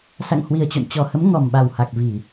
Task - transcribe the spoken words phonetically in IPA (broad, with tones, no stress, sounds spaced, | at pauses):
s a̰˧˨ ŋ h w i˨˩ ə̯ t͡ɕ o̰˧˨ n t͡ɕ ɔ˨˩ h ə˨˦ m ŋ ɔ˨˩ m ɓ a˨˩ w h a˨˩ k̚ v i˧˩˨